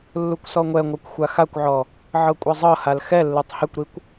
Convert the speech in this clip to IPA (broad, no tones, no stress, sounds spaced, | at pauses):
lː u kʷ s ɔ ŋʷ ɛ ŋʷ a kʷ xʷ a x a kʷ ʕ ɔ | ʕ ɤ kʷʼ ɛ zˤ ɤ h a l x ɛ lː ɯ tˤ h ɛ kʷ ɾ i kʷ